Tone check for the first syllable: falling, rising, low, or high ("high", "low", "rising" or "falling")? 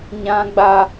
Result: high